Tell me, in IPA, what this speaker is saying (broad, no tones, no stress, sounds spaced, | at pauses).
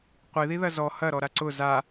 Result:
qʷ i ð i ð ɐ z ɔ h ɐ ɾ ɔ ɾ a ǀ ʊ z a